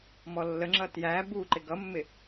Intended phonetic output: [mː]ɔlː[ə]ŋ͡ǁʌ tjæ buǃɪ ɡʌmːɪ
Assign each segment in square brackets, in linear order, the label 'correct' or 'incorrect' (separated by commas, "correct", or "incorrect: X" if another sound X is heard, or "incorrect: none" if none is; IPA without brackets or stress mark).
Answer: incorrect: m, correct